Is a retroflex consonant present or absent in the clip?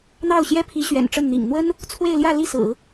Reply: present